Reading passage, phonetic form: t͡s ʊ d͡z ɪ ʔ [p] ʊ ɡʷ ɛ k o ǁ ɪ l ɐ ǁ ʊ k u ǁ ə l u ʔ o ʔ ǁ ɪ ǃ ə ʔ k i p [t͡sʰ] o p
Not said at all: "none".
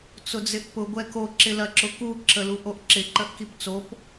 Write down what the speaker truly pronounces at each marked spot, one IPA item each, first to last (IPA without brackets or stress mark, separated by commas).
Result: p, t͡s